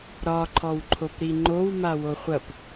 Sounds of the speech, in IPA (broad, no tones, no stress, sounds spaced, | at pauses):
ɾ ɒ ǃʰ ɔ w ǃʰ o p ɾ i ŋ͡ǃ o w m a w o χʷ ɐ p